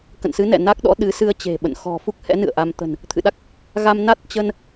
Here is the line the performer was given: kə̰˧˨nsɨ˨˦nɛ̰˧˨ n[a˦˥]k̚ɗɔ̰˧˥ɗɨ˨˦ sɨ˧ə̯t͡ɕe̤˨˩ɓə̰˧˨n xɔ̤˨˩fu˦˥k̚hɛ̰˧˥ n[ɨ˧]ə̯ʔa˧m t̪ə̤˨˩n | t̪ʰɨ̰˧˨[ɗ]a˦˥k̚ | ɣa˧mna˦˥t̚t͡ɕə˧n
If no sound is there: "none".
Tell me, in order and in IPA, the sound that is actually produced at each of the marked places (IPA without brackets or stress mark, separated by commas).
a˦˥, ɨ̰˧˨, ɗ